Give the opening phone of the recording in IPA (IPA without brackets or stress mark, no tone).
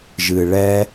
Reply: ʒ